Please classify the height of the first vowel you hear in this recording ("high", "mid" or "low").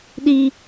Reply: high